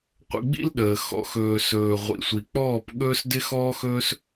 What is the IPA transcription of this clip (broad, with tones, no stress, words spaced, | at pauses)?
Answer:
qʷə̰˧ɡ͡bḭ˦l ɗəː˨ xɔ̰˨xɵː˨sɵː˨ ʁʷḭ˨sʷi˨k͡pɔː˦˨pɠɵː˦s dɪ˦xɔː˦xɵː˦s